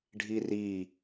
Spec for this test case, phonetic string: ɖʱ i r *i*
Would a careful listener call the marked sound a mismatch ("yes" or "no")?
no